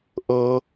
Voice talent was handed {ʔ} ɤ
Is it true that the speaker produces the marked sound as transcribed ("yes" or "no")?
yes